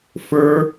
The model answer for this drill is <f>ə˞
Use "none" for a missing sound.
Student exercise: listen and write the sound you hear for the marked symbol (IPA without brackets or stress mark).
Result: f